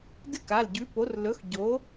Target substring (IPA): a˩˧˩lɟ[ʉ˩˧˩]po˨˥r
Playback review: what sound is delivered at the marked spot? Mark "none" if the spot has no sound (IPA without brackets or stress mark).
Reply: ʉ˨˥